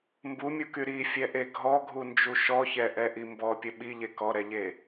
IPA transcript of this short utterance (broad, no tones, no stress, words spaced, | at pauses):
mbumʲuky ɾifʲɛʔe ɡʱɔɡʱund͡ʒu ʃɔçɛʔɛʔi mbɔpʲə ɓiʎe kɔɾɛʎe